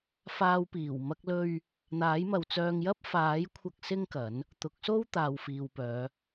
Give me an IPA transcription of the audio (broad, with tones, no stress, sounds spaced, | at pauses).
f aː˧ w p iː˨˩ w m ɐ˥ k̚ l ɵ˥ ɥ | n̪ aː˨˥ j m ɐ˨ w t͡s œː˧ ŋ j ɐ˥ p̚ f aː˨˥ j kʷʰ ɐ˧ k̚ s ɪ˥ ŋ k ɐ˨˥ n | t̪ ʊ˨˥ k̚ s o˥ w t̪ aː˨ w f iː˨ w p œː˨˧